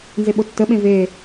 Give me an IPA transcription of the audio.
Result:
n z e ɓ o tː ə ɓ ẽ v e

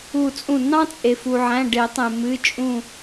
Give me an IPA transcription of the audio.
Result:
u˧˩ t͡sʼ ũ˧˩ n ɑ̃˥ t͡sʼ e˩ f u˩ ʕ æ̃˩˧˩ ɖ e˨˩˦ tˤ ẽ˩ m ɨ˩˧˩ t͡ʃʼ ũ˧˩

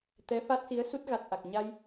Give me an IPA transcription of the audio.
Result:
t̪ ɛ˧˥ f a˦˥ t̚ s i˧˥ ə̯ s u˦˥ t̚ ɣ a˨˩ t̚ ʔ a˨˩ k̚ ɲ a˧ j

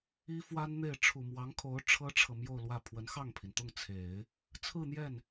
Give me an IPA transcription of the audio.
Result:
i˥ f w a˥ n n̪ e˥˩ ɪ̯ ʈ͡ʂʰ u˨˩ m w ɑ˧˥ ŋ kʰ o˧˥ ʊ̯ ʈ͡ʂʰ ɤ˥ ʈ͡ʂʰ ɤ˨ m j o˥˧ ʊ̯ l w ä˥˩ pʰ w ə˧˥ n x ɑ˥˩ ŋ pʰ i˩ n t̪ ʊ˥˩ ŋ t͡sʰ e˨˩˦ ɪ̯ | t͡sʰ ɹ̩˥˧ n̪ j ɛ˥˩ n

